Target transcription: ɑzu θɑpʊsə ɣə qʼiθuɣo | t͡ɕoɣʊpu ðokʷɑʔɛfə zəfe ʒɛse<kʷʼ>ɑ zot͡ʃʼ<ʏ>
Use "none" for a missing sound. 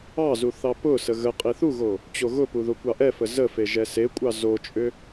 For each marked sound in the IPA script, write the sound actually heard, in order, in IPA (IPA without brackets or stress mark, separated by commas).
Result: kʷʼ, ʏ